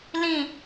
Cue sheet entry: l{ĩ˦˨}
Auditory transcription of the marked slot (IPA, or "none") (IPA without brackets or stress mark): ĩ˦˨